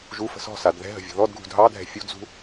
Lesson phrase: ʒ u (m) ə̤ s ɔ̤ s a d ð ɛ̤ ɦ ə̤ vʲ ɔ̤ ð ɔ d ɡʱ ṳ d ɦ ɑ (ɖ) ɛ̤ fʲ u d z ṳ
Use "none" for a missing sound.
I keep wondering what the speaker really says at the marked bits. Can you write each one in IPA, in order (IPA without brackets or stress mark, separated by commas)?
f, dʱ